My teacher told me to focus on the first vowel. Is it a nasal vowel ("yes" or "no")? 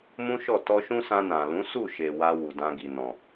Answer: yes